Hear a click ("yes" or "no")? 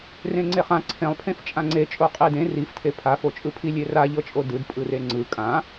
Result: yes